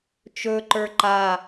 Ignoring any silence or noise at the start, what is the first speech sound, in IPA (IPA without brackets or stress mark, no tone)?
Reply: t͡ʃ